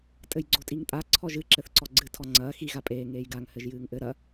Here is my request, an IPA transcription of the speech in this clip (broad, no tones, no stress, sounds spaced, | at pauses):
tʼ ɘ j ɡ͡ǀ o tʼ i ŋ tʼ a ǀʰ ɔ ʒ ɨ ǁ ɘ θ ǀ ɔ ɡ͡ǀ ɨ tʰ ɔ ŋ͡ǀ ɐː x i ɣ a pʼ eː ŋ eː j ɡ a ŋ h ɘ ʒ j ɨː ŋ ʔ ɘ ɾ ɐ